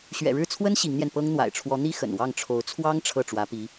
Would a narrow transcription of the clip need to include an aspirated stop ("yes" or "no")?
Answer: yes